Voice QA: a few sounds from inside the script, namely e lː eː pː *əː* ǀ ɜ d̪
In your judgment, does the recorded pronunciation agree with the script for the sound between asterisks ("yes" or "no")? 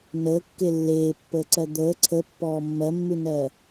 yes